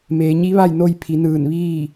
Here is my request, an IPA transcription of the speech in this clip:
meː˩˧ɲi˧˥ ʋa˥˨jno˧jpʰi˩˧ nɯː˧˩nʋiː˥˨

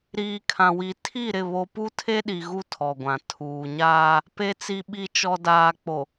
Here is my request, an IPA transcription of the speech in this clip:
ɾiː˨kʰã˨wi˨ tʰi˦˨ɾɪ˦˨ βo˦ pu˦tʰe˦ɗi˨ ɣu˦tʰɔ˨ɡʷã˨ tʰuː˨ɲaː˦ | pe˨t͡si˨ɓi˨t͡ʃɔ˨ daː˨k͡po˨

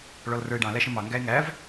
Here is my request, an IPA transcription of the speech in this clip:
ɭɔlrə˞e̯ɖɑ̃ læʃə̃mɑ ŋɡæe̯ŋæv

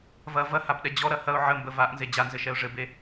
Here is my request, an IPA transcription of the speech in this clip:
vɐ vɐhabɗɛ d͡ʑɔɾɐ hɐʊ̯ ʕəmbə vaʔnze d͡ʑanzɘʃɛʊ̯ ʐɘbe

